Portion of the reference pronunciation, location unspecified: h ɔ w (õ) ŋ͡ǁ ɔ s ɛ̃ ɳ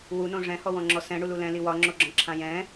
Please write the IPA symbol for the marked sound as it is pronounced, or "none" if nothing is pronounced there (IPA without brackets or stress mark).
ɔ̃